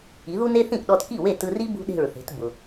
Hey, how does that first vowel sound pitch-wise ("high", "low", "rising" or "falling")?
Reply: rising